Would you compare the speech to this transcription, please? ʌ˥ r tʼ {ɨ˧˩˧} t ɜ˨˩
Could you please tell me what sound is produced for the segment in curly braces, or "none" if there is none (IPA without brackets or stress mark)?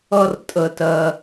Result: ə˧˩˧